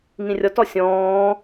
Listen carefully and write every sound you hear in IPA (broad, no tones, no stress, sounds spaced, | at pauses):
ŋ ĩ rʲ ɔ t ɔ sʲ ɔ̃ː